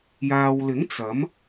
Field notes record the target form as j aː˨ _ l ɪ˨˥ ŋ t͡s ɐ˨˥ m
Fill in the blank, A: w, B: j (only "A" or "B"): A